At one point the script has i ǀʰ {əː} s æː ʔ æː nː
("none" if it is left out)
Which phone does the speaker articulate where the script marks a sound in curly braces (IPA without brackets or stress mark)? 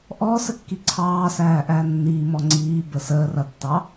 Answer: ɑː